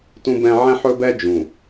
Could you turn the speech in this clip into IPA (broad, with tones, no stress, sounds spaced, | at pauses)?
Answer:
t ũ˦ b ɛ̃˦ ʕ ɛ̃˦ ħ ɵ˦ b ɛ˦ d͡ʒ ũ˨